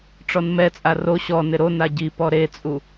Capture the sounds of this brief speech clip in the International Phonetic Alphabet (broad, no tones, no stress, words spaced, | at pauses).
ʈ͡ʂɔnmɛt͡sʼa ro ɕɔ nɪɾona ɟipɔ ɾet͡sʼu